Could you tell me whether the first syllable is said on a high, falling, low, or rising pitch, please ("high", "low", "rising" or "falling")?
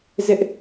high